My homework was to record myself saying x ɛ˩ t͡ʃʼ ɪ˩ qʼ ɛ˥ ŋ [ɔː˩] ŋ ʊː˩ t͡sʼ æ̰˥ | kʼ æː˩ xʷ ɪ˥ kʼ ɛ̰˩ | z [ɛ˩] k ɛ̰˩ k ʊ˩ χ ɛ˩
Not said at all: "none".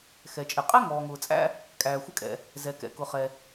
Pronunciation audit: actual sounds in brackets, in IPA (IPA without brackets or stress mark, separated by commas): ɔː˩, ɛ˩